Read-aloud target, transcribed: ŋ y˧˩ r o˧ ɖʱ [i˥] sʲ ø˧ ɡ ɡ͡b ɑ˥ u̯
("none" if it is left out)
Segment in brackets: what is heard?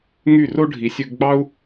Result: i˩˧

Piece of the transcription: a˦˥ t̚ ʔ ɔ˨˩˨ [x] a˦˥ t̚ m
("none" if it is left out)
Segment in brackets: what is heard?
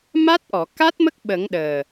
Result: k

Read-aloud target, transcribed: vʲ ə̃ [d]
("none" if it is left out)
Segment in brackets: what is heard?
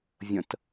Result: t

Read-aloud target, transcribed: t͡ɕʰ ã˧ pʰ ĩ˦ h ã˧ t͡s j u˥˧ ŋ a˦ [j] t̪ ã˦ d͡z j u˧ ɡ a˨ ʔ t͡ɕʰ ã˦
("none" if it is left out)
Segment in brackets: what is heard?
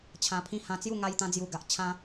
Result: j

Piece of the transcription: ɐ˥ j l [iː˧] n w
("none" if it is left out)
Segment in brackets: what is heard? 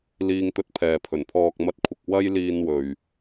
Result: iː˧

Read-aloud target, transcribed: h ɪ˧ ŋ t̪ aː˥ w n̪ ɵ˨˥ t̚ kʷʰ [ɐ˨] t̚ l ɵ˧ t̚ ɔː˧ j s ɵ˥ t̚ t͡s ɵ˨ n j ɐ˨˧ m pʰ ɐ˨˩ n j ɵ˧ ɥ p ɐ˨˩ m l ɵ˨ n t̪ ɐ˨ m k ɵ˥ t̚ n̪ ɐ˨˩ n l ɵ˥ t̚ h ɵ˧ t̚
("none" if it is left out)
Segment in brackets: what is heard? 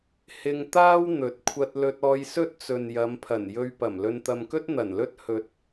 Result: ɐ˧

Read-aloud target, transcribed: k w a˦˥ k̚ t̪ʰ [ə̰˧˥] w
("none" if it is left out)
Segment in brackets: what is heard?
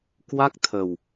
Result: ə˨˩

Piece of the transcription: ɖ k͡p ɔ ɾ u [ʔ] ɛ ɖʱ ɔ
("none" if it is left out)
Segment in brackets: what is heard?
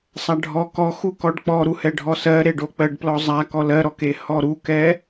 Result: h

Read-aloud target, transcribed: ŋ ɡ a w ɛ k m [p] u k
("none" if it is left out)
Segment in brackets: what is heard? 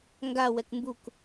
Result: b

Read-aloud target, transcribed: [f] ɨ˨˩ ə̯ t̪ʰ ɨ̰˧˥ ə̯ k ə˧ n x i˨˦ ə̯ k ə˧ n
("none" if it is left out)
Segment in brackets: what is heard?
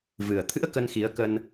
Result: v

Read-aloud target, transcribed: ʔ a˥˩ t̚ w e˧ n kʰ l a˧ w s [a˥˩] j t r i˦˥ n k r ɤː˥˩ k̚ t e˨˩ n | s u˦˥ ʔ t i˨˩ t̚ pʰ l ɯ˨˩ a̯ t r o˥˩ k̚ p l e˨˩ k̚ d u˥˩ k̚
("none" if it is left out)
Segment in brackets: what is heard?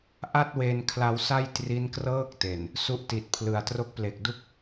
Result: a˥˩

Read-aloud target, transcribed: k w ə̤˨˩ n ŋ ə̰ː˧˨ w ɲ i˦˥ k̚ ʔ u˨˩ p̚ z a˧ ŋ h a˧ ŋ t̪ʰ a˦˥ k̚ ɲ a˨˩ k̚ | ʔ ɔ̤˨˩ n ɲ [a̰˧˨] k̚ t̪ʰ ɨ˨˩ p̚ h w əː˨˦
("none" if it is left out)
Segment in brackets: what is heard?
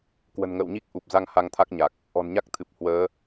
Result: a˦˥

